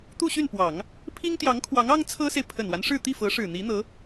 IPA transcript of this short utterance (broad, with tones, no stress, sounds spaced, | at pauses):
t̪ u˥˧ ɕ y˥˩ n p w ɑ˨˩˦ ŋ | pʰ i˥ ŋ t̪ j ɑ˧˥ ŋ kʰ w ɑ˧˥ ŋ ɑ˥ ŋ t͡sʰ ɤ˥ s e˨ ɪ̯ pʰ ə˨˩ n w a˦ n ʂ ɻ̩˥˧ t̪ i˥˩ f ɤ˧˥ ʂ ɻ̩˨˩ n̪ i˧˥ n̪ ɤ˧˥